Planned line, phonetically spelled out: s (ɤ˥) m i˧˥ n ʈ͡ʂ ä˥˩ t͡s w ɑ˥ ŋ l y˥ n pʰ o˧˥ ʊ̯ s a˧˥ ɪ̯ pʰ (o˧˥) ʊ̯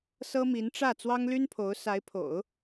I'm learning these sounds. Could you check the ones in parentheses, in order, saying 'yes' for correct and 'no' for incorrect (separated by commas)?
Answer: yes, no